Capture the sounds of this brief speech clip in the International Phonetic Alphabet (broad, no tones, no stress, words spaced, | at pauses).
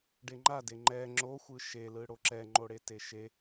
ɖeŋ͡ǃade ŋ͡ǃɛ ŋ͡ǁoxʷɯ ʃelɯ ɽoǁɛŋ͡ǃoɽe teʃe